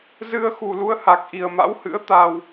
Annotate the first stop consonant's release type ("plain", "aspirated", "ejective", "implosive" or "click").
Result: plain